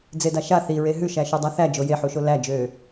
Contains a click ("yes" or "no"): no